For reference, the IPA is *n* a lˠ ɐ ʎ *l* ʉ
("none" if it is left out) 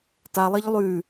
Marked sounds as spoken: t, lˠ

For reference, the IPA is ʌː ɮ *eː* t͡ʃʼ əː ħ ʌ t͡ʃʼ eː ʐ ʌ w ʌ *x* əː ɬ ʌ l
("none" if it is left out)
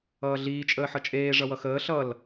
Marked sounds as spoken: iː, x

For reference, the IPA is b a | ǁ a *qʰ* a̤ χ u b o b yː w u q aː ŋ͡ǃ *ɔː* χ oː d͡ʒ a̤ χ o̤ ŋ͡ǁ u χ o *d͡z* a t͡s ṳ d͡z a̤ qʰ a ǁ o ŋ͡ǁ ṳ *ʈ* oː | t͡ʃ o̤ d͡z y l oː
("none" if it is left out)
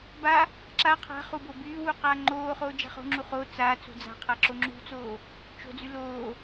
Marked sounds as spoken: qʰ, oː, t͡s, t͡s

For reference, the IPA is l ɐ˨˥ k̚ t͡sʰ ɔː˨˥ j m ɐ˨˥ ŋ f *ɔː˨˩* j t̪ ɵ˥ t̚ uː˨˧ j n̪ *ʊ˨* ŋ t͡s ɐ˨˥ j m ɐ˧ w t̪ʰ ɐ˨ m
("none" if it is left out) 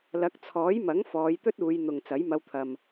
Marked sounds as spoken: ɔː˨˧, ʊ˨

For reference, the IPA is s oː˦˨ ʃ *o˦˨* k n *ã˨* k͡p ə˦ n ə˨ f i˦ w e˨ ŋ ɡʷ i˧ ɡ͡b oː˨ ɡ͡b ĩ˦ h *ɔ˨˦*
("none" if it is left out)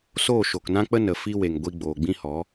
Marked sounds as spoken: o˨, ã˦, ɔ˨˦

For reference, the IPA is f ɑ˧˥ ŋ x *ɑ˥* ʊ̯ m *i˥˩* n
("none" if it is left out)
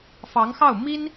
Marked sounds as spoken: ɑ˥˩, i˥

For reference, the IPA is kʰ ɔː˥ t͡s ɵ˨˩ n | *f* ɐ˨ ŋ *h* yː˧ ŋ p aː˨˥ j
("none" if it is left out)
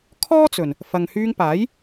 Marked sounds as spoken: f, h

